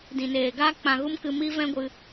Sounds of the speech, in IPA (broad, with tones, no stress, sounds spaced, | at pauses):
d ĩ˨ n eː˨ ɡ aː˦ k͡p ã˧ ɣ u˦ m k ɨ˧ m i˦ v ɛ̃˦ ɡʷ ɨ˧